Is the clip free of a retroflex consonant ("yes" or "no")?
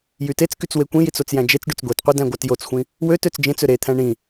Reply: no